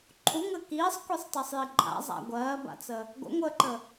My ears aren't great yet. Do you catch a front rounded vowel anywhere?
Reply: no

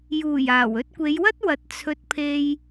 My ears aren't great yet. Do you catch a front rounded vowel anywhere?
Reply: no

